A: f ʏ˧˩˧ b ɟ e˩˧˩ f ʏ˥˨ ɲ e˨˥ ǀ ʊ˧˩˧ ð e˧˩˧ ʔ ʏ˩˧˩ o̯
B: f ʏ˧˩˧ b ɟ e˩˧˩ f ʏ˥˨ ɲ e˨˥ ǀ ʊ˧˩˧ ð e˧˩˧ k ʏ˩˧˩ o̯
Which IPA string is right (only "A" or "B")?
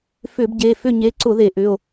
A